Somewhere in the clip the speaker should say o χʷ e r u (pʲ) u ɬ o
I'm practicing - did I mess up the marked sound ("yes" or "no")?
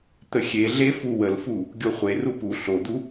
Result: yes